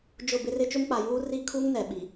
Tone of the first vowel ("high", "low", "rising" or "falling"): falling